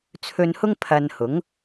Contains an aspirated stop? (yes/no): yes